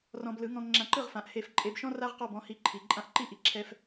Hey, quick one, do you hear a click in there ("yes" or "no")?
yes